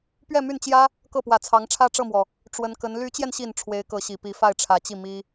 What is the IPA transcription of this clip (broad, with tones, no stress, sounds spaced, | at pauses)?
p ɥ ɛ˥˧ m y˥˩ n t͡ɕ j ä˥ | k ɤ˥˩ p w ä˨˩ t͡sʰ ɑ˧˥ ŋ ʈ͡ʂʰ ä˥ ʈ͡ʂ ɤ˥˩ m w ɔ˩ | ʈ͡ʂ w ə˧˥ n k ə˧˥ n l y˧˥ t͡ɕ j ɛ˧ n ɕ i˨˩ n ʈ͡ʂʰ w e˧˥ ɪ̯ k ɤ˧˥ ɕ i˨˩ p i˧˥ f a˥˩ ɪ̯ ʈ͡ʂʰ ä˧˥ t͡ɕ i˥˩ m i˥